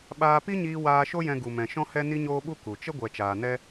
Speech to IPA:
ɓaː˧pi˦ɲiː˧ waː˧ʃo˦jɛ̃˧ɡu˨ mɛ̃˨ʃɔ̃˧hɛ˧ ni˧ɲoː˧ɓu˧ ku˨ t͡ʃə˦ ɡʷɛ˨t͡ʃaː˨ nɛ˦

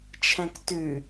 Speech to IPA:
t͡ʃʰɛ̃ktʉ

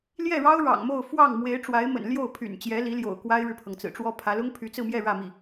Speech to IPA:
ljɛ˥˩ɻɑ˥ʊ̯ ɻɑ̰˨˩ŋmo˥˧ʊ̯ fwɑ˥˩ŋmwe˧˥ɪ̯ ʈ͡ʂwa˧˥ɪ̯mə̰˨˩nljo˥˩ʊ̯ pʰy̰˨˩nt͡ɕjɛ˧˥li˧˥ljo̰˨˩ʊ̯ kwa˥ɪ̯ɻɻ̩˨pʰɤ˩ŋ t͡sɹ̩˨˩ʈ͡ʂwɔ˥pʰä˧˥ lʊ˥ŋpʰy˧˥t͡sɹ̩˥˧mjɛ˥˧ ɻä˥˧mi˥˩

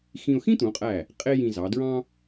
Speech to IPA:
xĩ˧ʊ̯xĩ˥t̪ũ˩˧qʼæ˧˩ | qʼe˥jĩ˧zɑ˩˧ dɹɑ̃˥

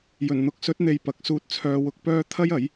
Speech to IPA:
jɵ˨˩n n̪ʊ˨˥k̚sɵ˨˥t̚n̪e˨j pɐ˨˥k̚suː˧t̚ t͡sʰœː˧wʊ˧k̚pœː˥ t̪ʰɐ˥jɐ˨˥j

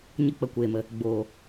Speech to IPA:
ɲə˦k͡pə˧kʷeː˨mə˨ | ɡ͡boː˨

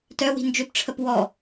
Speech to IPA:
tœwi̤ nd͡ʒøpʈ͡ʂʰəp wɔ

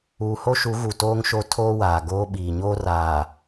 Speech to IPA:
uː˨ho˦ʃu˨˦ ɣu˨toː˦ŋʃo˦ tʰoː˦waː˨ɡoː˦ ɓiː˨ɲoː˦r aː˨

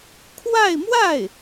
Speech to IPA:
kʰwa˥˧ɪ̯mwa˥˩ɪ̯

